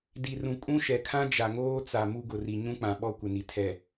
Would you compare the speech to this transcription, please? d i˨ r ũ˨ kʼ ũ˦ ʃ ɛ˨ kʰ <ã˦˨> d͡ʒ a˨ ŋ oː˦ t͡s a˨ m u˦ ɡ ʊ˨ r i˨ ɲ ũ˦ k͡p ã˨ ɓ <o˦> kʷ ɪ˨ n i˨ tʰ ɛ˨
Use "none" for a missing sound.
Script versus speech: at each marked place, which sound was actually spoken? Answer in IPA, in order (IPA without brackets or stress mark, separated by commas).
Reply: ã˦, ɔ˦